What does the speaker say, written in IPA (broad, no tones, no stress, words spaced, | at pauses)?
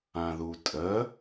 ãðutʼə